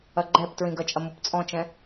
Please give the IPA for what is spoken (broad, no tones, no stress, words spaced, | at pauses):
ɐɡ͡ǃɛptɹĩ ɡɐt͡ʃʼɐ mupt͡sʼɔ̃t͡ʃɛ̃